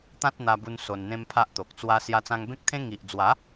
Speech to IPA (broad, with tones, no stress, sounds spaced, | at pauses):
t̪ ã˦ t̚ n̪ a˧ b u˧ n s o˧ n n̪ ẽ˦ m pʰ a˦ ʔ t̪ o˨ k̚ t͡s w a˦ s j a˧ t͡s ã˧ ŋ b ẽ˦ k̚ t̪ʰ ẽ˦ ŋ i˨ ʔ d͡z w a˨˦